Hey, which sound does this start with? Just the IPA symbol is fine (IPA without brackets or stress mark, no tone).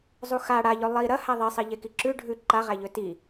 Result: zˤ